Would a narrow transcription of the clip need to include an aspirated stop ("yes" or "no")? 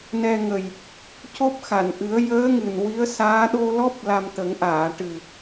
no